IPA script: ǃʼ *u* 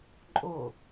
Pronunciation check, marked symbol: incorrect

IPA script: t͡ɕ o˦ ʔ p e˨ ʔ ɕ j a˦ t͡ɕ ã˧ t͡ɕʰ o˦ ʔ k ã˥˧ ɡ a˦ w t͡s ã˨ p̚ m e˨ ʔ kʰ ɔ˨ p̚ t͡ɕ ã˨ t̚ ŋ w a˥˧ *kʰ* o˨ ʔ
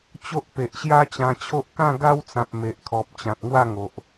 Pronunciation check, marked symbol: incorrect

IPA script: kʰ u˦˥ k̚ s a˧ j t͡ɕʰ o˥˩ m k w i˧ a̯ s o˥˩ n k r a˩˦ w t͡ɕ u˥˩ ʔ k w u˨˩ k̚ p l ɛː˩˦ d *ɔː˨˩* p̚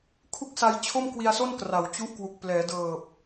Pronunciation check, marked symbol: incorrect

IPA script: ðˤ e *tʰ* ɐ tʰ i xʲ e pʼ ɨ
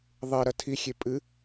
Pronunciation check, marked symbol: incorrect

